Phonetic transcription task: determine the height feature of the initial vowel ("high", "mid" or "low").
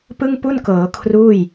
high